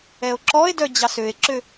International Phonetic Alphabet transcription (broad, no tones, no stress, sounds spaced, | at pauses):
ɛ o̯ ǁ ɔ e̯ d œ d͡ʑ ɑ s ø e̯ ǁ ø